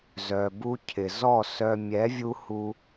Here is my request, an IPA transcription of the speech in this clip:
z œ˨ b u˧ cʰ ɪ˨ z ɔ˦˨ s œ˧ mʲ ɛ˨˦ vʲ u˧ h u˧

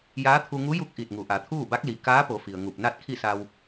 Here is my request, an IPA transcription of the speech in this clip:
j aː˧˥ t̪ʰ u˧ ŋ u˧˥ j u˧˥ k̚ ʔ i˧˩ t̚ ŋ u˩˧ ʔ a˩˧ t̪ʰ uː˥˨ b a˧˥ k̚ l i˩ k aː˧˥ p o˩˧ f i˩ ə̯ ŋ u˧˩ p̚ n a˥˨ t̚ kʰ i˥˨ s a˧ w

